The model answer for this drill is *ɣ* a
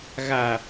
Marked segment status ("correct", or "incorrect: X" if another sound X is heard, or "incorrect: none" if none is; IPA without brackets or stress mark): correct